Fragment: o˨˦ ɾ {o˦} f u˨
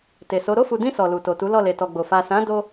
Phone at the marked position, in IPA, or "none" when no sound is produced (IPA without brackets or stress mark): o˦˨